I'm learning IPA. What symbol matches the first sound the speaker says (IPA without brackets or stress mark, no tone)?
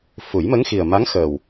f